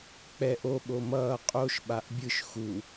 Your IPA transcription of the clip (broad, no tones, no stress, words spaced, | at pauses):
k͡pɛʔ o ɓomʌː qʼoʃ ɓaʔbʲɯʃ xu